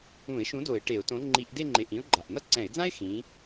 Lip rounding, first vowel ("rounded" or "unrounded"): rounded